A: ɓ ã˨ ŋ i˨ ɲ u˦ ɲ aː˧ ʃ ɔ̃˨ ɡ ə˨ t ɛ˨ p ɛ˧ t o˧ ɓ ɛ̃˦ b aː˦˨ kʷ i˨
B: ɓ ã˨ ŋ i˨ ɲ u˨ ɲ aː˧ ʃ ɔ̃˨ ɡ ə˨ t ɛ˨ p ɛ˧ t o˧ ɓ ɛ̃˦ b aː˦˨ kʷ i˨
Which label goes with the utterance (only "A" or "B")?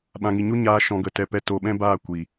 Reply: A